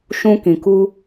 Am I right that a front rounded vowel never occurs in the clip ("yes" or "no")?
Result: yes